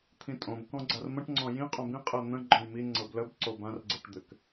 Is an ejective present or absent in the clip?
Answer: present